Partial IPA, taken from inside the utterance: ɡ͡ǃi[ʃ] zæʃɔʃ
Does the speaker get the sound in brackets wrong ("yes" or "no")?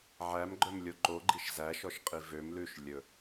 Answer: no